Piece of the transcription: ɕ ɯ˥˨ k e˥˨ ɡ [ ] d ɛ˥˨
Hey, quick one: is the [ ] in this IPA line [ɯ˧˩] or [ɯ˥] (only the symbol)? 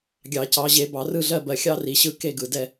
ɯ˧˩